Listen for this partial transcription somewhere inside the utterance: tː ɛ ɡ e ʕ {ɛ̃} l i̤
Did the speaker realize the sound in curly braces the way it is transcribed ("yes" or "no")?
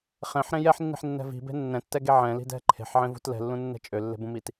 yes